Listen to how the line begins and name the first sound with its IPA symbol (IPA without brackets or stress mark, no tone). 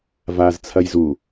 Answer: v